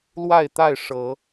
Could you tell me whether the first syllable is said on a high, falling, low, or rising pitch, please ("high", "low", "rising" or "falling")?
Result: falling